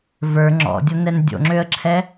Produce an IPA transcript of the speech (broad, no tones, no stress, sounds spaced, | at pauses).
v ə˞ ŋ͡ǁ ɔ̰ dʲ ʌ n ɛ n dʲ o̰ ŋ͡ǁ ø ə̯ ǁʰ ɛ